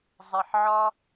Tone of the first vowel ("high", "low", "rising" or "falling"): low